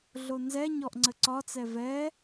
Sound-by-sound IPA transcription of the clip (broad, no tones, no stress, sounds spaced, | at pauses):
ɮ o n z ɛ ɲ ɔ ʔ ŋ͡ǀ ə ǀ ɒ t͡s ɛ v ɛ